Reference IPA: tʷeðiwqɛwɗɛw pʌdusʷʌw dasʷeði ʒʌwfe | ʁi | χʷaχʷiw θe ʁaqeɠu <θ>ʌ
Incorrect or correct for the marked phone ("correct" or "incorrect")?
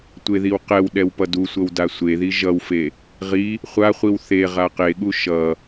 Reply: incorrect